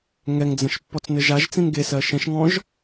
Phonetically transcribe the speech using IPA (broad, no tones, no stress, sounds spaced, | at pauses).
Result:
ŋ ɛ ŋ d͡z ə̃ ʃ pː ɔ t͡s n ɘ ʒ a ʒ t͡s ĩ n ɡ e s ɜ ʃ ɛ̃ ʃ ŋ ɔ̃ ʒ